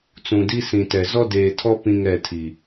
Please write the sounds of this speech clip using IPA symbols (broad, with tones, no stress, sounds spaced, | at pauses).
t͡s ũ˨ d i˦ s ĩ˨ t ɛ˨ z ɔ˦ d eː˨ tʰ ɔ˦ p ĩ˦ ŋ ɛ˦˨ tʰ i˨